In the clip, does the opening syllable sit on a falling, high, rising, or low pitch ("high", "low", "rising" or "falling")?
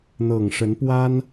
low